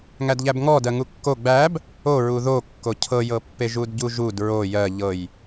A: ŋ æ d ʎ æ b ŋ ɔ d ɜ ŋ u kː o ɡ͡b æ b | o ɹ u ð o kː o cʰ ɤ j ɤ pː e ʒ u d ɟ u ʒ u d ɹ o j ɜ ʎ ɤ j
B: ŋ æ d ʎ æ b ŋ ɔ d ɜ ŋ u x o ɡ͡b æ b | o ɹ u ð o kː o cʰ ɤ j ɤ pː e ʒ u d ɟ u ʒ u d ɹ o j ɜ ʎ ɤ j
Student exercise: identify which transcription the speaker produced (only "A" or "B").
A